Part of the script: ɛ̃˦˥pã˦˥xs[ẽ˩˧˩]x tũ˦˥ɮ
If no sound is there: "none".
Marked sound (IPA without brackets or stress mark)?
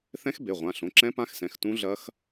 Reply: ɛ̃˩˧˩